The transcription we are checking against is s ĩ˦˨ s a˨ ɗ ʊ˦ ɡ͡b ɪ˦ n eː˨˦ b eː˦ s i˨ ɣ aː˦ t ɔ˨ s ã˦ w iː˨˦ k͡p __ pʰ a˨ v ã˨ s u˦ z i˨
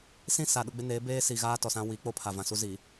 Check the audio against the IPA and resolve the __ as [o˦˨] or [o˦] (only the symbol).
o˦